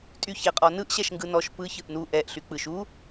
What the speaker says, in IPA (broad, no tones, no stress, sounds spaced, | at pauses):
tʼ y ç ɛ qʼ ɔ n ɯ ʔ ɕ ɛ ʃ ŋ ɡ ɯ n ɔ ʃ p ɯ ç ɯ ʔ n u ʔ ɛ ʔ ɬ y k͡p ɯ ʃ u